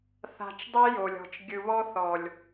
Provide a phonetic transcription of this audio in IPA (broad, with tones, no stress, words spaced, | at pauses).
θa̤˨t͡ʃ dˤi˦jo˨lʲɔ̤˨t͡ʃ ɡʲɯ˨βɔ˦ θɔ˨lʲ